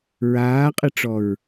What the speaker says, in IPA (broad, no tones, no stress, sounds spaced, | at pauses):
ɹ aː qʼ ɨ ʈ͡ʂ ɔ ɹ